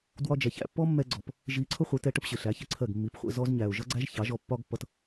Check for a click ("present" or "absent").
present